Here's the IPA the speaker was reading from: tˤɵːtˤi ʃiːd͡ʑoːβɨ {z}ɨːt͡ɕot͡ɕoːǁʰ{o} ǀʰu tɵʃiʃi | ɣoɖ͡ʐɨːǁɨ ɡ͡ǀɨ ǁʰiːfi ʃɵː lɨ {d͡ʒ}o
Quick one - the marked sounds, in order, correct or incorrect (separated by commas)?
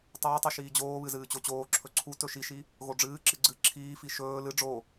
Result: correct, incorrect, incorrect